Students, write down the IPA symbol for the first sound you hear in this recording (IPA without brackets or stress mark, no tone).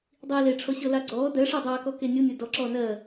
dˤ